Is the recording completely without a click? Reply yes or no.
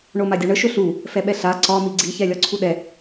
no